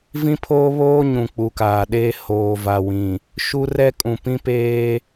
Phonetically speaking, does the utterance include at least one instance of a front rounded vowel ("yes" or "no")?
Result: no